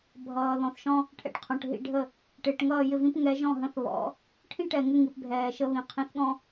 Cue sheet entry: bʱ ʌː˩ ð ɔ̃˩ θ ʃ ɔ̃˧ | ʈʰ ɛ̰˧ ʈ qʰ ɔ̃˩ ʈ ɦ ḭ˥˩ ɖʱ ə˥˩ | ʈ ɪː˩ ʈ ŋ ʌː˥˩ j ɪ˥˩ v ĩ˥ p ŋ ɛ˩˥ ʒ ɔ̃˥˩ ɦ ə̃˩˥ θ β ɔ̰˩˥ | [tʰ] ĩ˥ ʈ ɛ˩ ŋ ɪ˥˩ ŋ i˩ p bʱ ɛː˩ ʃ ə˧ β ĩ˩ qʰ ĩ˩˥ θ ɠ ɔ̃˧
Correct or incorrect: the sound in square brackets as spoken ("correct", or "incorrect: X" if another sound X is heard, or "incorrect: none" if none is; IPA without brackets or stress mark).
incorrect: ʈʰ